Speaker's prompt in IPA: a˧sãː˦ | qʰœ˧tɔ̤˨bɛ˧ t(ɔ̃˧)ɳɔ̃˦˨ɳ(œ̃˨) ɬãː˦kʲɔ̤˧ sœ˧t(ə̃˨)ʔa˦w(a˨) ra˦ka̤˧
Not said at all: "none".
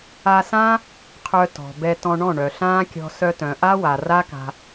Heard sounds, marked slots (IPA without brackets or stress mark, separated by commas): ɔ̃˧, œ˨, œ̃˨, a˨